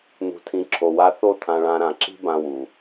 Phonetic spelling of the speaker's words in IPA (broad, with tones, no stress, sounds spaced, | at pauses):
n̪ ṳ˨ tʰ ĩ˨ ǁʰ o˨ w a˧ θ o˦˨ t̪ʰ ã˧ ɭ ã˧ ɾ ã˨ ǁ i̤˦ b ã˧ w u˨